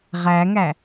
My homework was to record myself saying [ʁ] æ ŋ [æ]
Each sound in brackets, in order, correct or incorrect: correct, correct

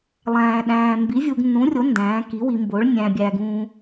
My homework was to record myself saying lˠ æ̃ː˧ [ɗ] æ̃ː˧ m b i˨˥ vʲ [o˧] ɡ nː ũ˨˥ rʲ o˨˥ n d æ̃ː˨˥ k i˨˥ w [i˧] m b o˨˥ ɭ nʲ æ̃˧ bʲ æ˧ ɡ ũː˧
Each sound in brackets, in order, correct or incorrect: correct, incorrect: u˧, correct

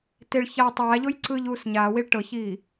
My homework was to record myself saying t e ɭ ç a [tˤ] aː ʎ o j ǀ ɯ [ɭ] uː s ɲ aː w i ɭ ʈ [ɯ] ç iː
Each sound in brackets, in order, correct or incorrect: correct, incorrect: ʎ, incorrect: ɤ

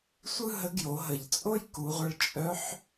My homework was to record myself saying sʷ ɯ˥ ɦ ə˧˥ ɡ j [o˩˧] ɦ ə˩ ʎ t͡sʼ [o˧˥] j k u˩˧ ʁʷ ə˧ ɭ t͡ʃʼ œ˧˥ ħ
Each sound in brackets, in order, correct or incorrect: correct, incorrect: o˥

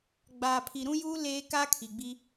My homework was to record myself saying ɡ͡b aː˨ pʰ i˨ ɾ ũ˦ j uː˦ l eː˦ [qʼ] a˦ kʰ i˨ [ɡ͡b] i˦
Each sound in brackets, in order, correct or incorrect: incorrect: k, correct

